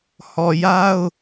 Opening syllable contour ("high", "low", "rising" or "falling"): low